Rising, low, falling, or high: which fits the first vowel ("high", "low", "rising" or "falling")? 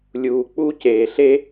low